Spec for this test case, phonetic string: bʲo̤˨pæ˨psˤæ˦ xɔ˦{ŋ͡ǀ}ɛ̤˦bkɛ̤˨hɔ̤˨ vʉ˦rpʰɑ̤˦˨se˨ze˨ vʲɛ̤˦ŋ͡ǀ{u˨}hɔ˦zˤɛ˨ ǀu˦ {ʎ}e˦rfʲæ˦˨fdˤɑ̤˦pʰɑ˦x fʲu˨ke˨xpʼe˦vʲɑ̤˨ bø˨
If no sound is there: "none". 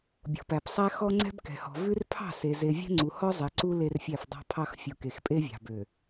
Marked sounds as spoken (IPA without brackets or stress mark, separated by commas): ŋ͡ǀ, u˨, l